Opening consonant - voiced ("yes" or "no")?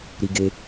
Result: yes